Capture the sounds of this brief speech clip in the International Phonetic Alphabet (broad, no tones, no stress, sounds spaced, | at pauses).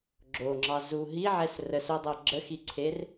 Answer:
ɡ͡ǁ o ŋ͡ǁ ɑ z u ɦ i ʕ ɛ s r ə s o dˤ ɤ ɡ͡ǁ ə x i ǀʰ e r